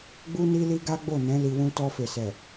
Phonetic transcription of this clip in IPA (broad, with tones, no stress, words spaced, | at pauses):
ɡ͡bu˦ni˦li˦ ɡa˦ɡ͡bo˦˨nɛ̃˨˦ li˧wũ˦ tɔ˧fe˨sɛ˨